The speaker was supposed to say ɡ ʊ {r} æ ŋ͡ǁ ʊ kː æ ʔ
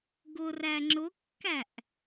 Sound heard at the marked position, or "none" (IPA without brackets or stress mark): r